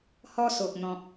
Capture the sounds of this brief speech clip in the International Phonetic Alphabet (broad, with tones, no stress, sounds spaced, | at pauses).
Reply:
h ɔ˧ s o˨ k̚ n̪ ɔ̃˦ k̚